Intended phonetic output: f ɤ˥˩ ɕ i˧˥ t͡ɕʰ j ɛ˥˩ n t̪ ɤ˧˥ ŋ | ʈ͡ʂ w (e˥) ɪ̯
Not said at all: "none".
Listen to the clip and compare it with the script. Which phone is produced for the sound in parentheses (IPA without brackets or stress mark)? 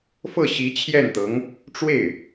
e˥˩